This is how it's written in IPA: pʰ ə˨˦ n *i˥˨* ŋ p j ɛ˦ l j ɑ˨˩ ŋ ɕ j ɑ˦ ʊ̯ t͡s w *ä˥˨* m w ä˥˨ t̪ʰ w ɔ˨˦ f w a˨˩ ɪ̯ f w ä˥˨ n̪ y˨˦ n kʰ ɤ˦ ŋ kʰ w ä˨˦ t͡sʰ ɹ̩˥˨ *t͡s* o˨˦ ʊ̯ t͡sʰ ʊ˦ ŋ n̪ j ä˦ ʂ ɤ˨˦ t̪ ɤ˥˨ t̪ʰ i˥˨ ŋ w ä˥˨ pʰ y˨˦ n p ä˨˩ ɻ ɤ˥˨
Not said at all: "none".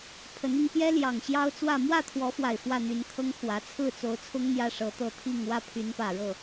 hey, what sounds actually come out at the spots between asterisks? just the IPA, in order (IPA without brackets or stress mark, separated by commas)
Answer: i˧, ä˥˨, t͡s